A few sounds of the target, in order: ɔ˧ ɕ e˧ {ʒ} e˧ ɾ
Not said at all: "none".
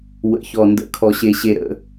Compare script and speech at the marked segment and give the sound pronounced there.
ɕ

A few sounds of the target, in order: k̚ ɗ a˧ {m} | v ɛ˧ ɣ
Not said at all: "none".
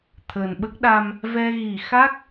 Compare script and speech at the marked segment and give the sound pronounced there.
m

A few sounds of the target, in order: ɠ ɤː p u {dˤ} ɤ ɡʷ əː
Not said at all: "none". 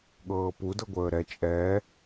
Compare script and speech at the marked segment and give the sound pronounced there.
d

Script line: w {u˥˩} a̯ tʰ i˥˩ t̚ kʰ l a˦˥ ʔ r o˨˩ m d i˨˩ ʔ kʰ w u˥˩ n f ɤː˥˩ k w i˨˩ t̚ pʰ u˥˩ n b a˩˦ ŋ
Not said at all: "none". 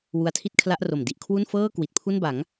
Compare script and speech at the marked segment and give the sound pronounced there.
u˧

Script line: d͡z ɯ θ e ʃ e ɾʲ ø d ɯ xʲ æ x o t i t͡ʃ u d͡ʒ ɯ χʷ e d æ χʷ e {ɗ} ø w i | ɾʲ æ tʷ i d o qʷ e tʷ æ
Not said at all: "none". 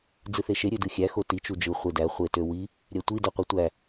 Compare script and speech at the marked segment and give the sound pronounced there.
t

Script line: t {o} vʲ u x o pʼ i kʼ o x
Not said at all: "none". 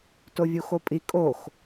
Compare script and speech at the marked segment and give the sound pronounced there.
o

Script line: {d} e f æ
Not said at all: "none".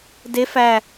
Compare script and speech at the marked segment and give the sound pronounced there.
d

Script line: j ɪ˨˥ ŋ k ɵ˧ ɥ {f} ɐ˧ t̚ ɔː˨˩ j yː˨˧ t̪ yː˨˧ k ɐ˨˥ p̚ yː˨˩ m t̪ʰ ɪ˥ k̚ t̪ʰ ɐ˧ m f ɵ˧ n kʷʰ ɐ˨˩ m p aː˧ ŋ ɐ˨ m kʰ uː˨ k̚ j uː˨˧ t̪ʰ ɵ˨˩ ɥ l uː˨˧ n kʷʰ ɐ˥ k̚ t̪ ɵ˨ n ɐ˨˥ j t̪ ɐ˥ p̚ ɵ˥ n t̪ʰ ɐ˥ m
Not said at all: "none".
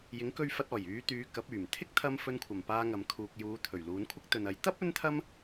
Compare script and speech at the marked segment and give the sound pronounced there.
f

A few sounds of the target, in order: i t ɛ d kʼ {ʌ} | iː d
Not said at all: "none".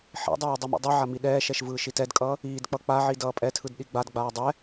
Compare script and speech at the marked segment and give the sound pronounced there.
ʌː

